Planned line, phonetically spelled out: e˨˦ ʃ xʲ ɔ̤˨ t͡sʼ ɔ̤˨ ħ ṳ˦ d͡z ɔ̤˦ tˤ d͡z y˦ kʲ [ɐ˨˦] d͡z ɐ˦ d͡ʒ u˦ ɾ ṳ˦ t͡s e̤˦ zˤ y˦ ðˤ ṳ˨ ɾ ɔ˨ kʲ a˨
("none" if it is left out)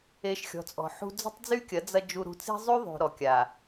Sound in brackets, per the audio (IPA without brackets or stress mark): ɐ˨˦